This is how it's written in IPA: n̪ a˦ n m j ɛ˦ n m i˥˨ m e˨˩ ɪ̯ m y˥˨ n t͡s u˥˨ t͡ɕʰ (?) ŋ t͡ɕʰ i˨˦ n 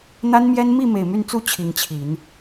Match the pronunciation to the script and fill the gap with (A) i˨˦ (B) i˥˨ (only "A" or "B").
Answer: A